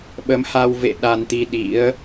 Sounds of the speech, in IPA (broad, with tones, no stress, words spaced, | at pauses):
ɓə˨˦mha˧wvḛ˧˨ ɗa˧nt̪i˧ ɗḭ˧˥ə̯